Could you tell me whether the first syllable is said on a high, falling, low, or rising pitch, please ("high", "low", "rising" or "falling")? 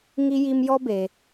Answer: high